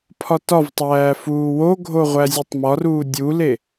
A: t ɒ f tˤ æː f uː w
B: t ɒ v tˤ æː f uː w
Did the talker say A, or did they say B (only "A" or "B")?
B